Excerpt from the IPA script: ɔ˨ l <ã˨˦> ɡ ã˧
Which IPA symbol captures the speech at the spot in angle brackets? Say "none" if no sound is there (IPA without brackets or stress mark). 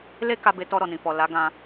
a˨˦